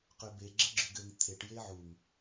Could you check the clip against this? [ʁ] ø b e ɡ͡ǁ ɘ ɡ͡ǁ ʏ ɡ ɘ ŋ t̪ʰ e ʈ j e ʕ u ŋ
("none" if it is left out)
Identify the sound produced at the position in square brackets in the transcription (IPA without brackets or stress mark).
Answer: q